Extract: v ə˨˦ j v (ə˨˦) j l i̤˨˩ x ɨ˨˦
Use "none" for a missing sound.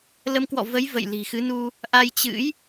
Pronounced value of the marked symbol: ə̰˧˨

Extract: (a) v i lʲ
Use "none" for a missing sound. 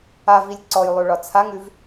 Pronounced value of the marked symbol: a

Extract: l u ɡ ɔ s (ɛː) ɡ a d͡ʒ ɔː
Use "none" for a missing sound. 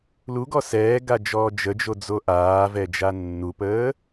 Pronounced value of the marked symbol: ɛː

